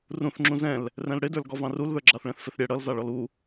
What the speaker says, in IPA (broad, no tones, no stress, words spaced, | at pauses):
rũθŋ͡ǁũ zɛ̃l | rɛ̃lɽɪdə˞l ɡɔvɑ̃rulðə˞ ɡ͡ǁɑθɭɛ̃θfɪθɾʲɛ ɽʌlzɑ ɭɔlu